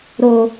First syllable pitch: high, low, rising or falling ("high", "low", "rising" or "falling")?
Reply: low